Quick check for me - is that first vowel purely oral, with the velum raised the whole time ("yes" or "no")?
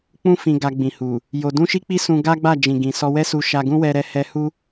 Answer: no